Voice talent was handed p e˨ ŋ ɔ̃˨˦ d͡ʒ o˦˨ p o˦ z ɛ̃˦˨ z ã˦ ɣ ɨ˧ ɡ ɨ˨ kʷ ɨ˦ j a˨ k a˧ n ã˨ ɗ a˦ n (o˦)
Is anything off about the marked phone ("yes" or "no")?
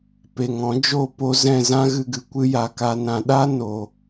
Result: yes